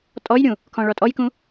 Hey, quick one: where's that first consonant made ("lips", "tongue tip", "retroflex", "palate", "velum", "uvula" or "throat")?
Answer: tongue tip